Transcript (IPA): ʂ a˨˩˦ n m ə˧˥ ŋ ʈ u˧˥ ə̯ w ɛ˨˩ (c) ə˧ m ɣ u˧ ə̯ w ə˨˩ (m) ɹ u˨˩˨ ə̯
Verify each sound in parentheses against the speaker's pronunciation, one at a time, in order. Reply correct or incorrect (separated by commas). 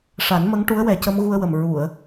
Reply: correct, correct